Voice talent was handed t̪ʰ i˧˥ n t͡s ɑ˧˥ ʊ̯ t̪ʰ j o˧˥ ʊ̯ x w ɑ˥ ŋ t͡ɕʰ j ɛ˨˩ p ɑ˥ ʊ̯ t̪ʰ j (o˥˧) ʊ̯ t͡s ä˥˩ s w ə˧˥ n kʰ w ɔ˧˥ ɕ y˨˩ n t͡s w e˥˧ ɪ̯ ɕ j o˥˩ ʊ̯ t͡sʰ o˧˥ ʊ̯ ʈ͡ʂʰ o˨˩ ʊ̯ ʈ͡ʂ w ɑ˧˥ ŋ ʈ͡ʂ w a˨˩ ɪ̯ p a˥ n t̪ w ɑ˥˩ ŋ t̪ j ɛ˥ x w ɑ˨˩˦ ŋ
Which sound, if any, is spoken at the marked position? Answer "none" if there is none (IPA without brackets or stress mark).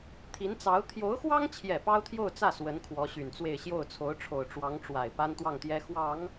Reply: o˥˧